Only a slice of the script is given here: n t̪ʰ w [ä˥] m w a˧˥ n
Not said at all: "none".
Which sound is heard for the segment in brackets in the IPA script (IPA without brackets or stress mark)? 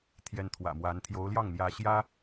ä̰˨˩